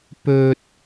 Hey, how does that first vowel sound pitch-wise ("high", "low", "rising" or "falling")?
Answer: high